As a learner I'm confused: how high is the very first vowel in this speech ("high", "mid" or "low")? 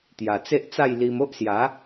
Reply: low